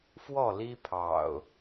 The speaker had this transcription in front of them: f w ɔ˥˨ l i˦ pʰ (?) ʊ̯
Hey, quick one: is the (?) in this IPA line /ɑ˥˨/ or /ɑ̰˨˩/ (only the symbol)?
ɑ̰˨˩